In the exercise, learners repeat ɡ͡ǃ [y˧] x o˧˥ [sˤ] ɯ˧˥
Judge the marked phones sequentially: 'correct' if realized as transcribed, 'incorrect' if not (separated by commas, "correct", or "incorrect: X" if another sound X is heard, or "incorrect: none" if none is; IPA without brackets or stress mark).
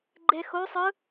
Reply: incorrect: e˧, correct